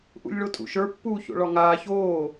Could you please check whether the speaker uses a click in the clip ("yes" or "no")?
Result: no